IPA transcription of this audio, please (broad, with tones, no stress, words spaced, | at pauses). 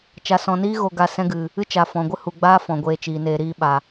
t͡ʃa˨sɔ̃˨niː˦ɣo˨ ɡa˧sɛ̃˦ɡɨ˨ | ɨ˦t͡ʃa˨fɔ̃˨ɡʷɨ˦ hu˨ɡ͡baː˦ fɔ̃˨ɡʷeː˧t͡ʃiː˨neː˧ ɾiː˧ɓa˨